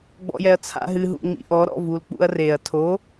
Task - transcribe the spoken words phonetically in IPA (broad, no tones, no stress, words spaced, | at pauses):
ɡ͡bɔ̰jɛɐ̯t͡sʰa̰ɦɨ ɦṵŋ͡mḭʔɔ ɾɔ̰vulk͡pṵɐ̯reɐ̯ tʰo